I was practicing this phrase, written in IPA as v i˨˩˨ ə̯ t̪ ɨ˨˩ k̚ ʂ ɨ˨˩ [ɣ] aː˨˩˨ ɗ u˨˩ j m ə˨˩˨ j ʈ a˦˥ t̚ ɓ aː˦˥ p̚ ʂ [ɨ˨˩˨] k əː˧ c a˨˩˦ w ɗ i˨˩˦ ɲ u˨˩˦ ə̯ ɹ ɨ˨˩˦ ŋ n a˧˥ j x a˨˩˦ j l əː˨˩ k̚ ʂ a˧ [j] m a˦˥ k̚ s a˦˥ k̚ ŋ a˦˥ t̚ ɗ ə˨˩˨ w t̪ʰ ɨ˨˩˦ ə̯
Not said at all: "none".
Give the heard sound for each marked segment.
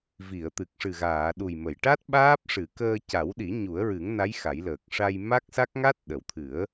ɣ, ɨ˨˩˨, j

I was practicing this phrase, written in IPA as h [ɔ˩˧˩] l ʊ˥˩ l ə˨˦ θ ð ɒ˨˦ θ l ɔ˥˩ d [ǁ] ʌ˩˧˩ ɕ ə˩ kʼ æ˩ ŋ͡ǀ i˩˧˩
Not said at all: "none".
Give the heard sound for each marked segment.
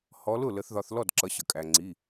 ɔ˨˦, ǁ

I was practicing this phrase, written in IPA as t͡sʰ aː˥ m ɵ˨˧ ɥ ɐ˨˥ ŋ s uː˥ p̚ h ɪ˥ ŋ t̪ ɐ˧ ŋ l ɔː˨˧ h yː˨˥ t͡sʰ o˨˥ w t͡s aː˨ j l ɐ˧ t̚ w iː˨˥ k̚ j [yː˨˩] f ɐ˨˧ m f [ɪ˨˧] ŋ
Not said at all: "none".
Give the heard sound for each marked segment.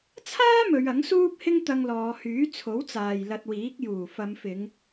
uː˨˩, ɪ˨˧

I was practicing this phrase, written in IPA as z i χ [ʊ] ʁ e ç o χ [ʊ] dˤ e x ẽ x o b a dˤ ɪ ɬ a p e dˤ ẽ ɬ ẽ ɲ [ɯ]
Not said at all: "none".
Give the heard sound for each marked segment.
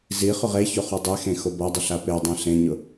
ʊ, u, ʊ

